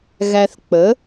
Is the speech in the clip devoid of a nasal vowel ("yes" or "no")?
yes